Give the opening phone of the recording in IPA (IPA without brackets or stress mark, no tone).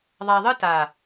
ðˤ